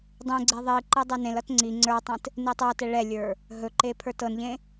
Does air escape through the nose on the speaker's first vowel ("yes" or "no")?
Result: yes